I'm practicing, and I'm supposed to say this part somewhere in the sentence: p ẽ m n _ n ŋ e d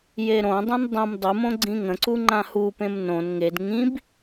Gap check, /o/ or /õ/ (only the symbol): õ